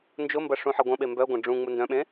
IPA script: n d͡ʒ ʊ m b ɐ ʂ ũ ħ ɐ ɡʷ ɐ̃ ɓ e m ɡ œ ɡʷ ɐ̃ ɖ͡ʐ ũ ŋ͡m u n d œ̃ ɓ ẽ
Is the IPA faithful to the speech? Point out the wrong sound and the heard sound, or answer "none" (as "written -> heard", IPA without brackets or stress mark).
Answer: ɡ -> b